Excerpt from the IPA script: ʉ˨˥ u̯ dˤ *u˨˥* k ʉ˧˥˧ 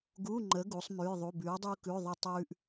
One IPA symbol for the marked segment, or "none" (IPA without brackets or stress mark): u˥